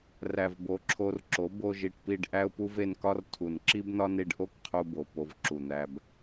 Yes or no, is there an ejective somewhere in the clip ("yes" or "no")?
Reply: no